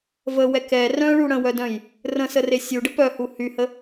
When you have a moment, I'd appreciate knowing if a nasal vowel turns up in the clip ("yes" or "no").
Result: yes